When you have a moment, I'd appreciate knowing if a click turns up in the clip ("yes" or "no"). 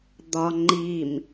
yes